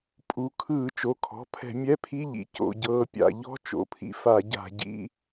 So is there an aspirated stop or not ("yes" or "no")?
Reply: yes